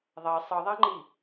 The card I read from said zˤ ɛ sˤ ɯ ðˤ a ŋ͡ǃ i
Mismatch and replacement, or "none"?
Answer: zˤ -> ðˤ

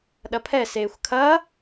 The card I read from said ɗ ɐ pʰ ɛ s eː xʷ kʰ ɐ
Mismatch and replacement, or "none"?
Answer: none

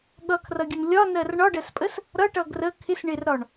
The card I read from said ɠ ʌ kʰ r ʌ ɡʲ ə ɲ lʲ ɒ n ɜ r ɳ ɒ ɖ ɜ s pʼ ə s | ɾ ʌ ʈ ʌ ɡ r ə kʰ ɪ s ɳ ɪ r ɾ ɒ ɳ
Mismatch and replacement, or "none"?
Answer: ɲ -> n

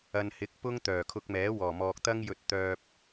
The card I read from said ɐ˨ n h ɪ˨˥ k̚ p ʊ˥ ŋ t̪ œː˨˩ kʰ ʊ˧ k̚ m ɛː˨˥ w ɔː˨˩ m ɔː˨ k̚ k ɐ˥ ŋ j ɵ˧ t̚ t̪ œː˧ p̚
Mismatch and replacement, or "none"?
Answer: k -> t̪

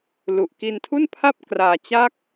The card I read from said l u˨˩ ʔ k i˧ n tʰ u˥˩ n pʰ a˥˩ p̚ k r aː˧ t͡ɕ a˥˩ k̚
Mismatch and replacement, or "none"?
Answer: none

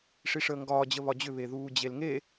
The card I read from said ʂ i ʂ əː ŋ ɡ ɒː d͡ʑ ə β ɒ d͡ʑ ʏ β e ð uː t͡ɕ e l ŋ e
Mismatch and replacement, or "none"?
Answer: t͡ɕ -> d͡ʑ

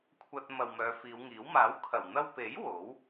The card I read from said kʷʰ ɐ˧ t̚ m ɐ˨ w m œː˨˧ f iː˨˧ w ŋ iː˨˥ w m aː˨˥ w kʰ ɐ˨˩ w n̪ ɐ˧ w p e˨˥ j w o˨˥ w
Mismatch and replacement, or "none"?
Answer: none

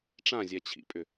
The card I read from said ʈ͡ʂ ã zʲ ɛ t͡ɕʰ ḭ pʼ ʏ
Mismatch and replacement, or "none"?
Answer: none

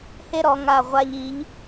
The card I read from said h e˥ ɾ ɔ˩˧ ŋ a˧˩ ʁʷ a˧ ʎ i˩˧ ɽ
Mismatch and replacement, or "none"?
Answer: ɽ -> ʎ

